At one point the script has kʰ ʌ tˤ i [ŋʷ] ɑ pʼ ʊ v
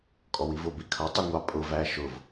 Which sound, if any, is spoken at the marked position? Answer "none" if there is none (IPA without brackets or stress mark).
ŋʷ